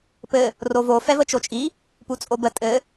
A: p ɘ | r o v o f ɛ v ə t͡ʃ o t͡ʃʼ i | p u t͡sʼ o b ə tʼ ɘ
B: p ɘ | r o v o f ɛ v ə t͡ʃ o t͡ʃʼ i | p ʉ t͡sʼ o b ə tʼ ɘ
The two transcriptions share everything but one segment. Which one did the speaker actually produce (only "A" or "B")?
A